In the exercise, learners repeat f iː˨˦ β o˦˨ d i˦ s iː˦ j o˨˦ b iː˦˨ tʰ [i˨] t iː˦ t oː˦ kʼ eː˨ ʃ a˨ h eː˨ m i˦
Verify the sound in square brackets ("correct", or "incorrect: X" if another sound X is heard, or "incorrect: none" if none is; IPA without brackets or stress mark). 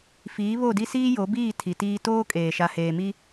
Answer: correct